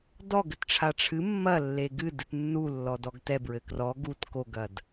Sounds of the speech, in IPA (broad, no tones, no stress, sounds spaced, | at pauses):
d ɔ ɡ ɘ t ʈ͡ʂʰ a ʈ͡ʂʰ ɨ mː ɐ lː e ɡ ɨ d ɨ t nː u lː ɔ d ɔ ɡ t ɛ b ɹ ɘ k r ɔ ɡ u t k o ɡ ɐ d